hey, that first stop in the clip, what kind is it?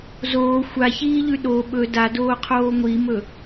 implosive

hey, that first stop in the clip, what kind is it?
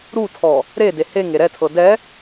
aspirated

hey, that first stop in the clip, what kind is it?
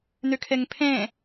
aspirated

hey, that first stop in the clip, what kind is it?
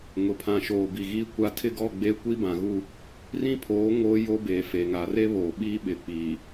aspirated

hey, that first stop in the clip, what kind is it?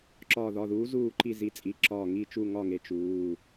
click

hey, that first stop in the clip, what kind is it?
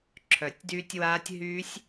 click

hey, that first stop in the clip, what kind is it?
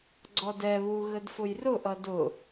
click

